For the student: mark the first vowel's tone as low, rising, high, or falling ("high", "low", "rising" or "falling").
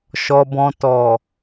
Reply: low